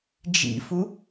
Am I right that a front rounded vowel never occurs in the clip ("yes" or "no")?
yes